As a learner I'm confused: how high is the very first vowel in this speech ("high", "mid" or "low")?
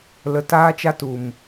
mid